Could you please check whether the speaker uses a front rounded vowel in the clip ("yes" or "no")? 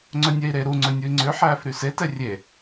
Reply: yes